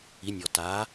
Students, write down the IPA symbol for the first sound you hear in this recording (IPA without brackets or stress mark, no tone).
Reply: i